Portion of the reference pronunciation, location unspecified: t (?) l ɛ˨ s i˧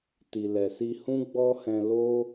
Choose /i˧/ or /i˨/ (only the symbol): i˨